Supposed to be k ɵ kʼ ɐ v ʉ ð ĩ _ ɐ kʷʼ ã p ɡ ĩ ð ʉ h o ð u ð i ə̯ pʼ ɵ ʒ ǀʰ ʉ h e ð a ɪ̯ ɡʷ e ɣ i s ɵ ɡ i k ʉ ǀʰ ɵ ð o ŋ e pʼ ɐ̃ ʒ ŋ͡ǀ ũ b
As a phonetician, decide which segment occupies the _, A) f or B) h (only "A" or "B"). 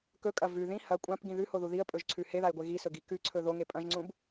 B